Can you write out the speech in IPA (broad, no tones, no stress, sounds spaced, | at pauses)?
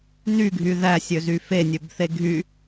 n y ɡʱ y ð æ sʲ ø z y f e nʲ ø b θ e ɡʱ y